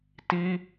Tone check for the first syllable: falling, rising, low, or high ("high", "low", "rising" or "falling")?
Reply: high